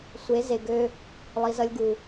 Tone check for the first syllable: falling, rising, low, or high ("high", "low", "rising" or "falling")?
rising